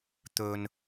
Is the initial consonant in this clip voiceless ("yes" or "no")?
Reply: yes